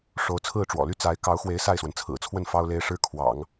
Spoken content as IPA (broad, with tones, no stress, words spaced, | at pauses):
ʂo˧˥ʊ̯t͡sʰɹ̩˥˩ʈ͡ʂwɔ̰˨˩ly˥ t͡sa˧˥ɪ̯ kɑ˧˥ʊ̯xwe˧˥ɪ̯ sa˥˩ɪ̯swə˩nt͡sʰɹ̩˨˩t͡sʰwə˥˩n fɑ˥ʊ̯le˥ɪ̯ʂɻ̩˥kʰwɑ̰˨˩˦ŋ